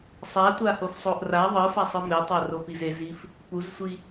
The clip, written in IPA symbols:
sˤatʷahofsˤoʔ ra ðˤɯfasˤɯ metˤaropiz ezif | puzsʷi

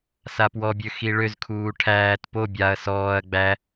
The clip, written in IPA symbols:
sapwɔbʲø xiɭøzkʰuː ʈʰæːt po bʲaɐ̯ sɔːɐ̯ ɡ͡bæ

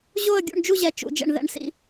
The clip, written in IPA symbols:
ʑo˥˧ə̯ɡʲṵ˥˧ɳ d͡ʒu˥˧ʑɛ˧ t͡ʃṵ˧d͡ʒɛ̰˧ɳ ðɛ̰˧ɳsḭ˧

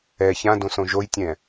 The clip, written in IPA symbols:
ɛ çãdõsõ ʒojtʲɛ̃

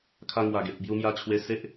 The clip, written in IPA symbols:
kʰa˧ŋwa˨˩ɡe˨p̚ bju˧mja˧t͡ɕʰwe˧ se˦ʔ

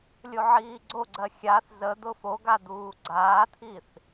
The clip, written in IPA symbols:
lʲoʕiːɡ͡ǀoɡ͡ǀɜ xʲaθ zə d̪ʊfoɡa d̪uːɡ͡ǀaːt̪ʰiθ

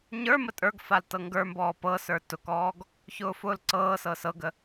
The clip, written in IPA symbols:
ɲə˞mə tʼə˞ɡfal tɤŋɡə˞mbɔː pɤsə˞ tʊkɔːɡ | çʊːfʊːlǀɤːsɤ sɤɡə

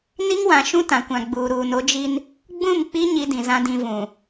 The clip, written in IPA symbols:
ni˦ŋwã˨ ʃũ˦tã˨kʷã˨ ɡ͡buː˨ɾuː˨no˦ d͡ʒi˦n | ɡ͡bũ˦˨mk͡pi˦ ɲi˦dĩ˨zã˦ dĩ˦ vũ˨

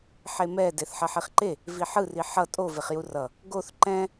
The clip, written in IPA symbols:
ħemɛ deθħʌħiχǃe | viħɯ riħʌ tʼo veχjurʌ | ɡoθ ǃɛ̃

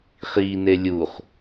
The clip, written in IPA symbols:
χine lʲuχ

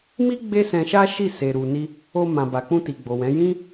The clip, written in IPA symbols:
mi˦ ɡ͡be˦sɛ̃˧ʃa˦ʃi˦˨ se˨ɾu˨ni˧ | o˧ mã˨ba˨k͡pũ˧ ti˨ɡ͡bo˨wɛ̃˨˦ jĩ˦

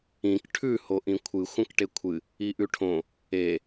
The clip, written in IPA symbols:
ĩk ʈʰʉ hoʔĩkʷʰɨ xʷɐ̃kʈekʷʰɨ | iʔʉʈʰõ | e

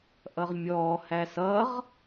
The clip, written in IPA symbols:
ʔʌʁmʲɔhæ sʌʁ

